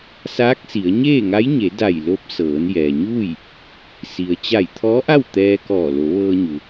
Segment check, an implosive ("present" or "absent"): absent